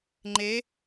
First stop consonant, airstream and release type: click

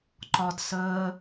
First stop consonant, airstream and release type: click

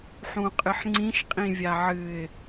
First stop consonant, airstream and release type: ejective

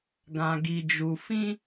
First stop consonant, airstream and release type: plain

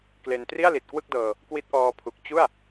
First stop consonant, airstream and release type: plain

